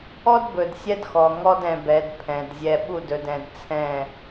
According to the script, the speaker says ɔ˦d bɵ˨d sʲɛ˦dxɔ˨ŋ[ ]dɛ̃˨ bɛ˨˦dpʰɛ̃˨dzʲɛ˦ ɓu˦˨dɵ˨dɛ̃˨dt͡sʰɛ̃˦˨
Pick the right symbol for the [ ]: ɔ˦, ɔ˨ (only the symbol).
ɔ˦